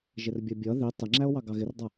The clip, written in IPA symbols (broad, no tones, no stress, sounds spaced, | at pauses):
ʒ ɪ r bʲ ʌ bʲ ʌ ð i tˤ ɪ ŋ͡ǁ æ o̯ w ɑ ɡ ɑ ɣ ɪ r dˤ ʌ